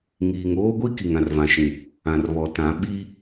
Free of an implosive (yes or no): no